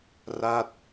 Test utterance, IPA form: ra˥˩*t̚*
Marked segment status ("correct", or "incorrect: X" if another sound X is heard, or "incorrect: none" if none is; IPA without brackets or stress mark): correct